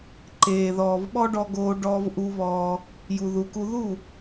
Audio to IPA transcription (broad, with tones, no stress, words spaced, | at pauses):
ǃeː˨ðɔː˨v ɓɔ˦ɖɔ˧ ɡoː˧ ɖɔː˧vʔu˧βɔː˧ | ju˨ðu˨ku˧ ðu˦˨